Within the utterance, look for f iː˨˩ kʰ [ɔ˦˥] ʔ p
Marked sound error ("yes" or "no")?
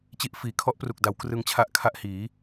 no